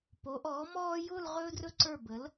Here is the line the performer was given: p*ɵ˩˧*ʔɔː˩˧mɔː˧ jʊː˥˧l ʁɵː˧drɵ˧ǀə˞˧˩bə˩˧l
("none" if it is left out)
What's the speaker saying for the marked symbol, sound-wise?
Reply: o˩˧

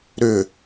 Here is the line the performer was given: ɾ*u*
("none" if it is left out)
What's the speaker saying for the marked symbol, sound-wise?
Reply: ʏ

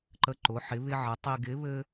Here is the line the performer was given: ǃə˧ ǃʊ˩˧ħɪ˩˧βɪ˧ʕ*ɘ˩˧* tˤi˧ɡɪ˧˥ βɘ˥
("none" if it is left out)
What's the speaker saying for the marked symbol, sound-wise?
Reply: ɘ˩˧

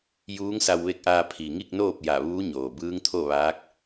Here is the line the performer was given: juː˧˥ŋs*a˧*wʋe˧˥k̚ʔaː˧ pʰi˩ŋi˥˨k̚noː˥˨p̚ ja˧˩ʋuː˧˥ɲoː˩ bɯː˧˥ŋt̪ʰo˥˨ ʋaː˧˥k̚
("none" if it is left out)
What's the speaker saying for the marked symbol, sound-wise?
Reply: a˧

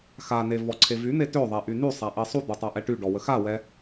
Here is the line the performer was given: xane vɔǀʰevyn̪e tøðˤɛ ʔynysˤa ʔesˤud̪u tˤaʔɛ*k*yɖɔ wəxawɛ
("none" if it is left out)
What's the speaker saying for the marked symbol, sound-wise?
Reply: ʈ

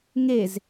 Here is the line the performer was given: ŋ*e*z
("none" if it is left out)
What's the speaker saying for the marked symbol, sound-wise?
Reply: e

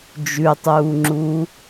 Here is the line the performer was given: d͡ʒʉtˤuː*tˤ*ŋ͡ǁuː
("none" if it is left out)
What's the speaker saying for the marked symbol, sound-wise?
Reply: none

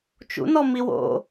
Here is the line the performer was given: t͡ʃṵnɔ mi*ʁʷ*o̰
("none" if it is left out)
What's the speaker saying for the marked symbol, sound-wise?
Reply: w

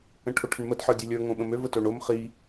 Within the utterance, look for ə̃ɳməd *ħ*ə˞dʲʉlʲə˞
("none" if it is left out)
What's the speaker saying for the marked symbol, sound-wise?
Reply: ħ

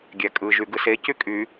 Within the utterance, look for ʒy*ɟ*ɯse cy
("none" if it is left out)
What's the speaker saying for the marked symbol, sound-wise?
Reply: ɡ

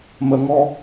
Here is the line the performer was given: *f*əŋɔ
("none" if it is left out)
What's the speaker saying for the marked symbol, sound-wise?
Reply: m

